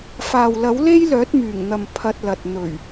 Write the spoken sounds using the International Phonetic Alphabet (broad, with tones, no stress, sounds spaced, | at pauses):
f aː˨ w l ɐ˨˥ w l e˥ j l œː˨˥ t̚ m yː˨˩ ŋ n̪ ɐ˨ m pʰ ɐ˧ t̚ l ɐ˨ t̚ n̪ ɵ˨˩ ɥ